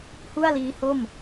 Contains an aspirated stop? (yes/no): no